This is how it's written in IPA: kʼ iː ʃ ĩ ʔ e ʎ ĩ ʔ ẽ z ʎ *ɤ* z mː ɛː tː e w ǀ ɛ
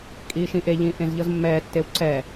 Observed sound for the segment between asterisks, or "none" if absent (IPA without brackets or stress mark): ɤ